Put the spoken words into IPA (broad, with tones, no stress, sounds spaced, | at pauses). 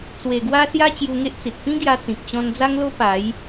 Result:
t͡s w e˨˩ ɡ w a˧ s j a˧ t͡ɕ j u˧ ŋ e˦ ʔ t͡s i˨ t̚ p ĩ˦ ɡ j a˧ t͡s ĩ˨ k̚ t͡ɕ ɔ̃˧ n d͡z a˦ ŋ l o˦ p a˨˦ j